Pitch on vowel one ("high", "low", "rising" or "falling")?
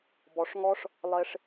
low